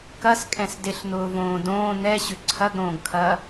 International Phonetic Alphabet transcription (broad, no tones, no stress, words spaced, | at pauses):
kɐskʼɛ̃s dɪɬn̪ʊːvõː dõː n̪ɛɕʏ ǀʰɐɡɾõːɡkʰɐː